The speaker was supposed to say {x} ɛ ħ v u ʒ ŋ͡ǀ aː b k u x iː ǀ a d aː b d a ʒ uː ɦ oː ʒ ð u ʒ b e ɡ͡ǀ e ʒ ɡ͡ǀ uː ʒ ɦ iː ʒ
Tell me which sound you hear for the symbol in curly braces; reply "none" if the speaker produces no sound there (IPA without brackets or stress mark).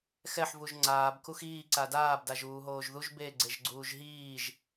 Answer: x